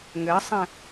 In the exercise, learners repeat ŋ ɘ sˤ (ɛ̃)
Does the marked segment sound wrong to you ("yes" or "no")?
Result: no